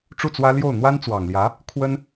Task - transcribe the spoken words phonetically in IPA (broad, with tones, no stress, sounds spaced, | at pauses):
ʈ͡ʂ u˥˩ t͡s w ä˥ l j o˥˩ ʊ̯ n̪ w a˥ n t͡s w ɑ˨˩ ŋ l j ä˧˥ | kʰ w ə˥ n